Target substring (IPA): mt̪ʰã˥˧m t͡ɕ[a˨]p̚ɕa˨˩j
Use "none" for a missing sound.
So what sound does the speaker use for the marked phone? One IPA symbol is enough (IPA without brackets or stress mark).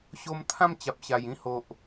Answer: a˨